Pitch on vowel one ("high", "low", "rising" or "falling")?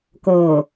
low